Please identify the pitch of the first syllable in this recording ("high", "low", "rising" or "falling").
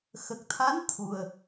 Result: low